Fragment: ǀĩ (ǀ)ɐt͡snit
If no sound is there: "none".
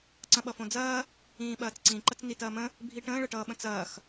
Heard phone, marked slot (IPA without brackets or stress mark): ǃ